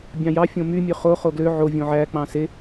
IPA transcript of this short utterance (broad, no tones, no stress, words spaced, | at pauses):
bʲɑ̃jɑ fʲõmy mʲøχo χoɡlø ʕo vʲõʕæ k͡pɑ̃se